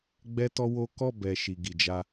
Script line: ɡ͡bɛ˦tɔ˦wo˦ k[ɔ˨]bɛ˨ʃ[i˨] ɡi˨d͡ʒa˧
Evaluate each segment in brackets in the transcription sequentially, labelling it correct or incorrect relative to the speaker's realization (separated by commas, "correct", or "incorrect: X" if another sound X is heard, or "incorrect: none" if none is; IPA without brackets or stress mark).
incorrect: ɔ˦˨, correct